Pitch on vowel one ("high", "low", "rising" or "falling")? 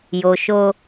low